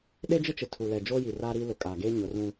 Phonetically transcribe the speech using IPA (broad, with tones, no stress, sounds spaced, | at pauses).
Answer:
ɗ e˦ d͡ʒ ɪ˦ t͡ʃ ɪ˨ tʰ u˨ l ɛ˨ d͡ʒ oː˦ j i˨ r aː˦ ɾ iː˦ l ʊ˨ kʼ aː˨ ɡ eː˦ ɲ ʊ˨˦ r ũ˦